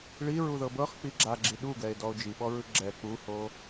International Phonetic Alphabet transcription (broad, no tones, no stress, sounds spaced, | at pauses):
ɭ i ɹ u ð ɤ b ɤ χ k͡p i ɡ͡ǁ a ɡ͡ǁ i ɗ u ɡ ɛ e̯ d ɔ o̯ d͡ʒ i ɓ ɔ ɹ ɯ ɡ͡ǁ ɛ k͡p u h o